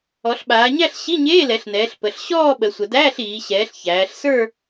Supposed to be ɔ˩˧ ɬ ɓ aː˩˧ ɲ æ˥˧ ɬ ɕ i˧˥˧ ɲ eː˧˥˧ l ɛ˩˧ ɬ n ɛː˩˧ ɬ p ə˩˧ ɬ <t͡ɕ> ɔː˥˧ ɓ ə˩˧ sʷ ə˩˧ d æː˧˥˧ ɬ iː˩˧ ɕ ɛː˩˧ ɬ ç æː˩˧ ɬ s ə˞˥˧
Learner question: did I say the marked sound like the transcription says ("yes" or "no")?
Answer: no